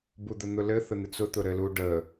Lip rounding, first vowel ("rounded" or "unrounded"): rounded